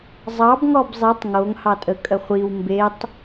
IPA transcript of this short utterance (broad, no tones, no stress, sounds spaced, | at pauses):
zˤ ɑ b ŋ ɔ b zˤ i tˤ ŋ o ŋ h ɑ tʼ ə kʼ ə χʷ i w m b e tˤ